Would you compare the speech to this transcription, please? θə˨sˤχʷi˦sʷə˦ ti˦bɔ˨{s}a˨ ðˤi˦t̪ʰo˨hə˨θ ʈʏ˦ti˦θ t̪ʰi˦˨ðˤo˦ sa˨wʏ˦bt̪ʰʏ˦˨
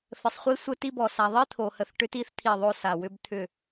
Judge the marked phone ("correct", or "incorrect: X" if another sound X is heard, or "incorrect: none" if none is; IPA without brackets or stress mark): correct